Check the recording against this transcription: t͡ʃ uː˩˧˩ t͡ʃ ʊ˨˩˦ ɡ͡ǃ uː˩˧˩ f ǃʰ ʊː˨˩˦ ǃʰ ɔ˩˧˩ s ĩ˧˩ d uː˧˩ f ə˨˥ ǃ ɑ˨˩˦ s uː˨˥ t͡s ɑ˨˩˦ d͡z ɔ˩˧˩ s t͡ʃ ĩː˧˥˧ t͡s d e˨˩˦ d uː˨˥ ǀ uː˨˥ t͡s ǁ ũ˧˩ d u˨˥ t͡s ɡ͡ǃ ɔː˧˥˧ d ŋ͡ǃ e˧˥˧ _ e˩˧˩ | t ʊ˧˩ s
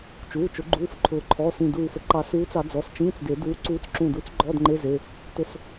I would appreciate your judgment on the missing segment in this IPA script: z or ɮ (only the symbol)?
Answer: z